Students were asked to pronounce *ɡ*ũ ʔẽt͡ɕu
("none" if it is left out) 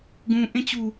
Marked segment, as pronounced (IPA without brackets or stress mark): ɡ